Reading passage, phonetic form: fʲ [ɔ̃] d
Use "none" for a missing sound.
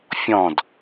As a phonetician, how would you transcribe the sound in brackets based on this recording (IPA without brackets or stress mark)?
ɔ̃